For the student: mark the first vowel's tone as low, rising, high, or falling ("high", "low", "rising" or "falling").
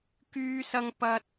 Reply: high